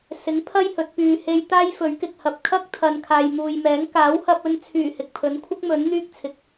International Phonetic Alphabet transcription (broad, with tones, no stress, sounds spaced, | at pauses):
s ɪ˨˥ ŋ pʰ ɐ˥ j h ɵ˨˥ t̚ p yː˧ h e˥ j t̪ aː˥ j f ɵ˨˥ ɥ k ɪ˨ k̚ h ɐ˨ p̚ kʰ ɐ˥ k̚ t̪ʰ ɐ˨ n kʰ aː˨ j m uː˨ j m ɛː˨˥ ŋ k aː˨˥ w h ɐ˧ p̚ ɵ˧ n t͡sʰ yː˨˩ h ɪ˨ k̚ pʰ ɵ˨˥ n kʷʰ ɪ˥ k̚ m ɵ˨˥ n n̪ yː˥ k̚ t͡sʰ ɪ˨˥ k̚